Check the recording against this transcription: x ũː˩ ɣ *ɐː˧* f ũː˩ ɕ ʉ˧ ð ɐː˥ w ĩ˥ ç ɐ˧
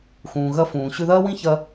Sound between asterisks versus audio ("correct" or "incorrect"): incorrect